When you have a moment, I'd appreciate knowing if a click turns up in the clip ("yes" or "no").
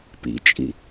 no